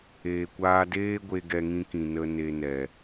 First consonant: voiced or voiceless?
voiceless